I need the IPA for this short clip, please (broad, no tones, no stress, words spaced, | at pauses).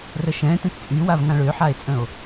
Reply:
rəʃɛ̃ tə̃tt͡sʼywav ŋãɭøħae̯t͡sʼə̃o̯